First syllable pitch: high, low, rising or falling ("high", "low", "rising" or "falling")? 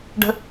high